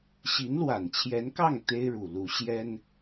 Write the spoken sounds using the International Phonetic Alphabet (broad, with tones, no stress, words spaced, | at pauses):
ɕi˧˥nlwa˨˩nt͡ɕʰjɛ˧˥nkɑ˥˩ŋ t̪e˥ɪ̯ɻu˨˩lu˧˥ ɕjɛ˥n